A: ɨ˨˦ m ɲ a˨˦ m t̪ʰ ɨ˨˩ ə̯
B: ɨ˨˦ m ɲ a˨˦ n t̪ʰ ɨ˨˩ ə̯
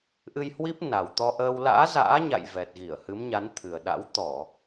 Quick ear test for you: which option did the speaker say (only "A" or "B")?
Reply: B